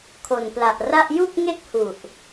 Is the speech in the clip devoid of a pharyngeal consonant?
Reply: yes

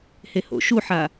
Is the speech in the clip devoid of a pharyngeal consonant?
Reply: no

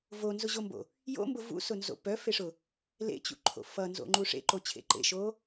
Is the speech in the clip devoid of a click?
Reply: no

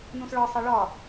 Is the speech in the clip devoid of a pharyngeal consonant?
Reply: yes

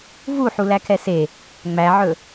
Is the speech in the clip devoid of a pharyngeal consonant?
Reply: no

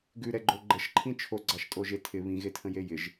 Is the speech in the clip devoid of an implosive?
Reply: yes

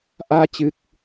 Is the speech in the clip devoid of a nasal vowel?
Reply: yes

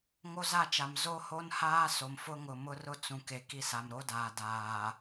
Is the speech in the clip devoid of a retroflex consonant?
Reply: yes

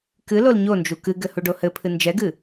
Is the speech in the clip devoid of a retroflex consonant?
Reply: no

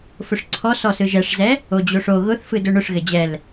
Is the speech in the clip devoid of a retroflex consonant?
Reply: no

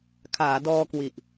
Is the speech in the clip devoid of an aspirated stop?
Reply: no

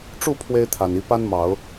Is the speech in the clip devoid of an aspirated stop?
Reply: no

